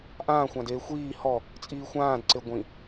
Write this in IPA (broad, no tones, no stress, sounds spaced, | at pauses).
ʔ ãː xʷ ã d eː xʷ iː h ɔ | t͡sʼ iː xʷ ãː d ǀ e ɡʷ ĩ